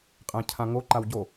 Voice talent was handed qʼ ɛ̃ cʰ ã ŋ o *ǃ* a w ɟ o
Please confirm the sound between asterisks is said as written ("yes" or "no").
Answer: yes